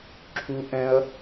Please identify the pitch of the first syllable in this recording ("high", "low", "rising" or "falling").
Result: high